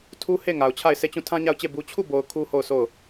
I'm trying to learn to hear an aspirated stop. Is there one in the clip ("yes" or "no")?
yes